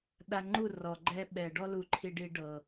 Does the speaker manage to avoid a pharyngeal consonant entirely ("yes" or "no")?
yes